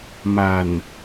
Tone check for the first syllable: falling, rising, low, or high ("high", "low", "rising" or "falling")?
low